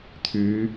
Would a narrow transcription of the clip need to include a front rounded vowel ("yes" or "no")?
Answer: yes